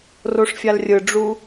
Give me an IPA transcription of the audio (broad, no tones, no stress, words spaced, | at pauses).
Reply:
roʂfʲalrʲɯɖ͡ʐu